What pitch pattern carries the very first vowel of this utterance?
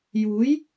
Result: rising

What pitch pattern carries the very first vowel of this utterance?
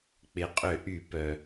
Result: low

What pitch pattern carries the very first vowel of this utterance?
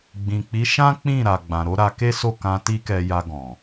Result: low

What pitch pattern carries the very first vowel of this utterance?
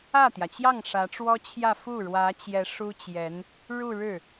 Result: falling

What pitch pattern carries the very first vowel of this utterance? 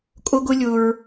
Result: high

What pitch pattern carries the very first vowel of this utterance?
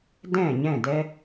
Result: falling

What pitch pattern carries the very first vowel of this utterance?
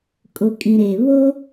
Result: low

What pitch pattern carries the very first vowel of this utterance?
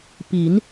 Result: rising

